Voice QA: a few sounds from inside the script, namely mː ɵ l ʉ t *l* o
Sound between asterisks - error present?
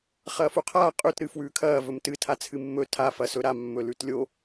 yes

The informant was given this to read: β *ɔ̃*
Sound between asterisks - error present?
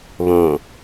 yes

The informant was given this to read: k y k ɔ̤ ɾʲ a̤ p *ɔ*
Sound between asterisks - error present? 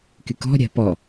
no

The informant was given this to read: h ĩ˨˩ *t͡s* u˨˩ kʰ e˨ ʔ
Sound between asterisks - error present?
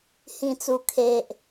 no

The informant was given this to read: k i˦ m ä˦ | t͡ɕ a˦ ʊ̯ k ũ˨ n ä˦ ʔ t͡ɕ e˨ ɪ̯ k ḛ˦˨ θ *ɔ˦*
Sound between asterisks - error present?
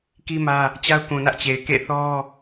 no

